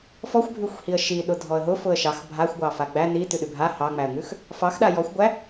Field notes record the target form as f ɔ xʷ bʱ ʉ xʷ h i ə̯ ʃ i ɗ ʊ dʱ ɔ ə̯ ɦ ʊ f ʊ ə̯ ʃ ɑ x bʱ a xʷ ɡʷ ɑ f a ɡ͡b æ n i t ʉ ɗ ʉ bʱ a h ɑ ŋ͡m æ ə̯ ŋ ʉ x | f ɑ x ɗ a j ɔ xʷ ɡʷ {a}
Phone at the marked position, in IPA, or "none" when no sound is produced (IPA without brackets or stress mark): æ